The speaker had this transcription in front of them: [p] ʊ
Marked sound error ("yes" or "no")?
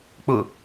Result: yes